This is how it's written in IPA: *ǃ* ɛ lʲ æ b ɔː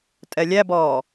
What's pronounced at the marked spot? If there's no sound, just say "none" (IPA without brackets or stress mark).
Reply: tʼ